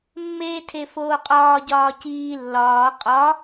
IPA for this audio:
mː eː tʰ e f oː qʼ ɒː ɟ ɒː c iː lː ɒː qʼ ɒ

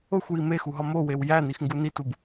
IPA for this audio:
o xʷ j i m e x u ɦ ɒ m o w e w j æ n i x ŋ ɡ u n i t u b

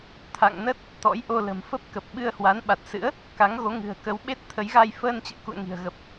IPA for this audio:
t̪ʰ a̰˧˨ ŋ n ə˦˥ t̚ | t̪ ɔ̰˧˥ j ʔ o˧ l ə̤˨˩ m f ə˦˥ p̚ k ə˨˩ p̚ ɓ ɨ˧ ə̯ h w a˨˦ n ɓ a˨˩ t̚ s ɨ̰˧˥ ə̯ | k a˨˦ ŋ ɣ o˨˦ ŋ ɨ̤˨˩ ə̯ k ə˨˦ w ɓ e˦˥ t̚ t̪ʰ ə˨˦ j ɣ a˧ j f əː˧ n t͡ɕ ə̰ː˧˥ k ṵ˧˨ ə̯ ŋ i̤˨˩ ə̯ ɣ ə˨˩ p̚

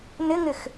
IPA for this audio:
n ɪ ŋ ɪ x

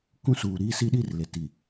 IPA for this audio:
k ũ˦ s uː˨ ɾ iː˦ s i˦ ɗ i˦˨ r l e˨ t i˨

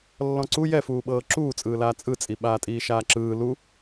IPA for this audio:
lː ɔ̃ ǀ u j ɛ f uː ɓ ɤː ǁ uː t͡sʼ ɯː l aː t͡sʼ ɯ t͡sʼ i ɓ aː tʼ iː ʃ aː ǁ ɯː l u

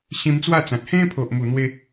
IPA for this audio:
ɕ ĩ˧ m t͡s w a˥˧ t͡s ã˨ t̚ h ẽ˦ pʰ o˨ ʔ m u˨˩ n̪ w e˧

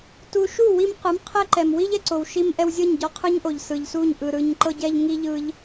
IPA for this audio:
t u˧ ʃ u˦˨ w i˧ m q ɯ˨˦ m qʰ ɛ˦ ǃ ɛ˨ m w i˦ ʎ ɛ˨ ǀ o˨ w ʃ i˧ m ʔ ɛ˧ w zʲ ɤ˦˨ ɲ ɟ ɔ˧ qʰ ɯ˦ ɲ ʔ o˨ ʎ s ɯ˨ ʎ s u˦˨ ɲ ʔ ɯ˨ ɾ ɯ˨ ɲ ǃ ɤ˧ ɟ ɛ˧ ʎ ŋ i˦ ʎ ɯ˦ ʎ

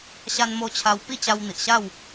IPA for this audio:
ɕ a˧ n m o˧ t͡ɕʰ a˧ w p i˥˧ t͡ɕ a˧ w n̪ i˨ ʔ ɕ a˥˧ w

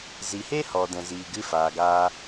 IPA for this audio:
z i˨ h e˦ h ɔ˨ d ɛ̃˨ z iː˨ ɡ ɨ˧ f aː˨ ɡ aː˧

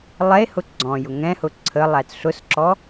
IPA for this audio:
lˠ ɛ e̯ h ʊ ɡ͡ǀ ɔ̃ j ʊ ŋ ɛ̃ h ʊ ǀʰ ə lˠ æ t ɬ ʊ s ǁ ɔ

